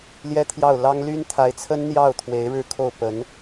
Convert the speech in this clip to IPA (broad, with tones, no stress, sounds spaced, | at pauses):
l j ɛ˥ t̪ʰ j ɑ˥˩ ʊ̯ l ɑ˥ ŋ l y˥ n t̪ʰ a˧˥ ɪ̯ t͡sʰ ə˥ n n̪ j ɑ˥˩ ʊ̯ t̪ʰ w e˧˥ ɪ̯ ɻ ɻ̩˥˧ kʰ o˥˩ ʊ̯ p ə˧˥ n